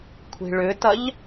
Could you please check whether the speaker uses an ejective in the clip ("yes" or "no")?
no